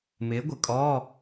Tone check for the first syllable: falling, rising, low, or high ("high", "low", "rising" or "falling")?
rising